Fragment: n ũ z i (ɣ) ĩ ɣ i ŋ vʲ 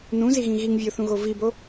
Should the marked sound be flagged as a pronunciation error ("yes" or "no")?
no